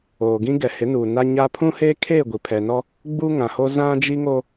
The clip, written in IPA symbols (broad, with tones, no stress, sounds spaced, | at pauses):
oː˨ ɡ ĩ˦ ɡ ɛ˨ h ɪ˨˦ n uː˨ n a˦ ɲ a˦ pʰ ũ˦ h eː˦ kʰ eː˦˨ ɡʷ i˨ pʰ ɛ˨ n ɔ˦ | ɡ͡b u˦ ŋ ã˨ h o˦ z ã˦ d͡ʒ i˦ ŋ o˦